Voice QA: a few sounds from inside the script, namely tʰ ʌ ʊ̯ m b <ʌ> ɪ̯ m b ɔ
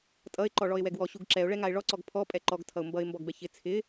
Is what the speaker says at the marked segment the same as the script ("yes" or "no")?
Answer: yes